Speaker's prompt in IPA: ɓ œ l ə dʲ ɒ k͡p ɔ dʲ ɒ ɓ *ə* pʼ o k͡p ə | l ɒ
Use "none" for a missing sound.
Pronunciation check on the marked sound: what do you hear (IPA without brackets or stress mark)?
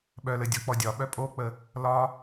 œ